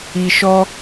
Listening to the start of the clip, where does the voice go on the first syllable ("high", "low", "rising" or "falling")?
low